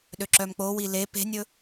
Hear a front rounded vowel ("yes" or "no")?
yes